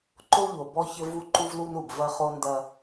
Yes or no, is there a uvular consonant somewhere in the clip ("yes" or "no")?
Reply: yes